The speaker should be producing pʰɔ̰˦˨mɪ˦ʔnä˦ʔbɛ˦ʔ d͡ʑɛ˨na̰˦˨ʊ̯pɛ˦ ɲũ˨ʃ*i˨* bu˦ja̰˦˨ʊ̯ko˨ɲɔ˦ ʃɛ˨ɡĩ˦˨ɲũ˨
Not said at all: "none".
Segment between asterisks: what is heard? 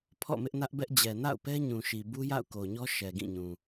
i˨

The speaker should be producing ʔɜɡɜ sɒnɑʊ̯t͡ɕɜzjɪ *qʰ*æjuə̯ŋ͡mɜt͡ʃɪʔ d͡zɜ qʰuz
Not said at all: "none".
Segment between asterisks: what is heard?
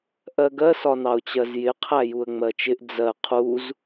qʰ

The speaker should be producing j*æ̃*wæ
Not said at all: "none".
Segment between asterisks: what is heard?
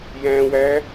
æ̃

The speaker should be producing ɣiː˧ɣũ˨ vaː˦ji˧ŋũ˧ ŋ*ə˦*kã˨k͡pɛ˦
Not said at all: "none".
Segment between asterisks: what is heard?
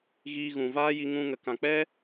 ə˨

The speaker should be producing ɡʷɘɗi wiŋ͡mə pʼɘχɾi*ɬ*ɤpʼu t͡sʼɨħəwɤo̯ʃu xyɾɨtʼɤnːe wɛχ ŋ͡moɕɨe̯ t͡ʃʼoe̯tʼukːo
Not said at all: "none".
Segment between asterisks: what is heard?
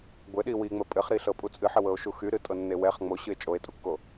ɬ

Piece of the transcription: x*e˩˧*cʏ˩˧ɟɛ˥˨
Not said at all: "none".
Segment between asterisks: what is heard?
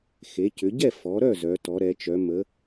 e˩˧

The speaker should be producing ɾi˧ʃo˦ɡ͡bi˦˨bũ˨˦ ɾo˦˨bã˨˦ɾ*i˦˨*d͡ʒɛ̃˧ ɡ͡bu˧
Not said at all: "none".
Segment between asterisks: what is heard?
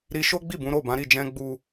i˦˨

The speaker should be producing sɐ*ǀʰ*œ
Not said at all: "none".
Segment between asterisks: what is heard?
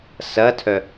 tʰ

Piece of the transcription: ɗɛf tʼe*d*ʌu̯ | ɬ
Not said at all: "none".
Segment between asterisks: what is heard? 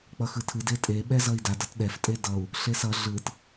d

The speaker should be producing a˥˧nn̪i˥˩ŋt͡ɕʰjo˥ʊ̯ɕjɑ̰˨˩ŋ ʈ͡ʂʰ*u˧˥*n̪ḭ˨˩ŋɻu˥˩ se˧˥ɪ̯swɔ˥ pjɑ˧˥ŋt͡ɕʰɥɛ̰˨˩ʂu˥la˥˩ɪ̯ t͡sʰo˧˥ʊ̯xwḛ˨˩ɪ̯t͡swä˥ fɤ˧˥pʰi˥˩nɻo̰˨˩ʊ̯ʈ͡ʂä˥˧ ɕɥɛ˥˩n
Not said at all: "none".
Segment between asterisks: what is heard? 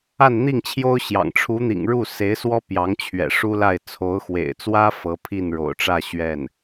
u˧˥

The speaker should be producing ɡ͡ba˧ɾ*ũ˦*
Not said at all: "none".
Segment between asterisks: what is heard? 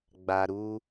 u˦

